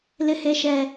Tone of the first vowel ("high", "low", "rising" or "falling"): high